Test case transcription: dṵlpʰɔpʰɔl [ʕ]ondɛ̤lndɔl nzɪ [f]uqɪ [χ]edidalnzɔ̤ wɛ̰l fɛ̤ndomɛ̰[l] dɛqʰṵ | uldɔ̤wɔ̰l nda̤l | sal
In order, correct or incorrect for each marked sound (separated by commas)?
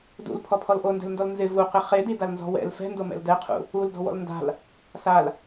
incorrect, incorrect, correct, correct